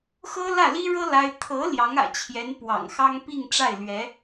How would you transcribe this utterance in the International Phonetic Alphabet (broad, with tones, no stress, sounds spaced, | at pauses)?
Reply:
x ɤ˥ l ä˥˩ l i˥ ɻ ɤ˥ l a˥ ɪ̯ t̪ʰ ɤ˧˥ l j ɑ˧˥ ŋ ä̰˨˩ t͡ɕʰ j ɛ˧˥ n p w ɑ̰˨˩ ŋ x ɑ˥ ŋ p i˥˧ ŋ ʈ͡ʂ a˥˩ ɪ̯ l ɥ ɛ˧˥